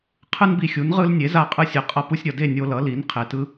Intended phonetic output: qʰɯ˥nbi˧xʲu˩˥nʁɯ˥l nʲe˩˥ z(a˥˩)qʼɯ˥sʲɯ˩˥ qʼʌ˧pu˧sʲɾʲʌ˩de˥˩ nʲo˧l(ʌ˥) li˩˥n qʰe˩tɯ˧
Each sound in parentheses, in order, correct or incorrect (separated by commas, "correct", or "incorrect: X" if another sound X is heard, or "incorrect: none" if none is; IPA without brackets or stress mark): correct, incorrect: ʌ˩˥